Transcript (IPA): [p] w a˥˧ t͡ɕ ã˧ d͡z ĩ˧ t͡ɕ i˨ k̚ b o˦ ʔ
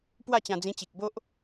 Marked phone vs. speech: correct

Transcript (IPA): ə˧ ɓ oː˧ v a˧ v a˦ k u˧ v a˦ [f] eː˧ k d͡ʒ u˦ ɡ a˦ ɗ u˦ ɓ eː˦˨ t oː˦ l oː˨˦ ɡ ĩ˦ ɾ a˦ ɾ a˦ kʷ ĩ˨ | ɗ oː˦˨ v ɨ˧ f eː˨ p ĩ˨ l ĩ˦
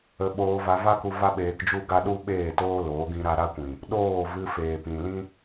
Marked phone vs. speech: incorrect: ɓ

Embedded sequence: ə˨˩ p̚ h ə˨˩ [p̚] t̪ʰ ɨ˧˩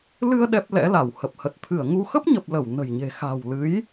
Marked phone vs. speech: incorrect: t̚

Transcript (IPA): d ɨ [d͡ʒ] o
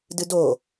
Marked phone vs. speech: incorrect: d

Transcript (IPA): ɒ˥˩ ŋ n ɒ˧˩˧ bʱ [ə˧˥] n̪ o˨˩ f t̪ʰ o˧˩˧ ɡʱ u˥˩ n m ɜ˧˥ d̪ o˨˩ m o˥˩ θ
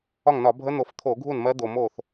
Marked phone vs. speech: correct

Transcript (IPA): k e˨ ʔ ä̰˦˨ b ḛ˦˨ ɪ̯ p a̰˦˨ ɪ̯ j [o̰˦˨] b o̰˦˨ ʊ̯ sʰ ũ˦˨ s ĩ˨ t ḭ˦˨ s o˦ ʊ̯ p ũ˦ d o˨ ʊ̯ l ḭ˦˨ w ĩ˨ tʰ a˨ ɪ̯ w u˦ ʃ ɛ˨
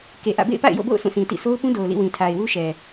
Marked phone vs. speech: correct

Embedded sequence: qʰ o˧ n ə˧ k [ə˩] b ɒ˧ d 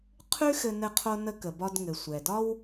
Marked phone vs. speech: correct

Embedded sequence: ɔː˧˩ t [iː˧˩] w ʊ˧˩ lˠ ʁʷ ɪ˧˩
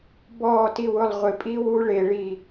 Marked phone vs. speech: incorrect: i˧˩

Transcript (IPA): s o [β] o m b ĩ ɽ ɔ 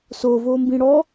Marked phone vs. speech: incorrect: v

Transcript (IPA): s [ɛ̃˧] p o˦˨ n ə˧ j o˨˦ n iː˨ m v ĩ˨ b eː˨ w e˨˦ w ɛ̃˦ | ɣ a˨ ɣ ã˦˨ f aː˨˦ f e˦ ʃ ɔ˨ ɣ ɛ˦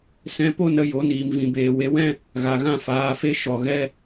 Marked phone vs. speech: correct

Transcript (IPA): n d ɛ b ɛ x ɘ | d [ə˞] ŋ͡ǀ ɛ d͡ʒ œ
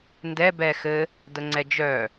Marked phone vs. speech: incorrect: ə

